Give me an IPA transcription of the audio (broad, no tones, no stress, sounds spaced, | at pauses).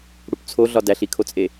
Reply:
ɽ u p t͡sʰ o ɮ ɒ d æ ɬ i kʰ o t͡sʼ e